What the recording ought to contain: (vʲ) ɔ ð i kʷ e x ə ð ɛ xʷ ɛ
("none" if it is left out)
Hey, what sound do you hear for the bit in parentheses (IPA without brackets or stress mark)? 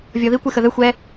vʲ